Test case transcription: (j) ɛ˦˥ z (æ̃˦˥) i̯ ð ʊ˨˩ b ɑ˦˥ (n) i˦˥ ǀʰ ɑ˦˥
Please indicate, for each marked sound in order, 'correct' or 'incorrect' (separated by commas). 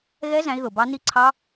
incorrect, correct, correct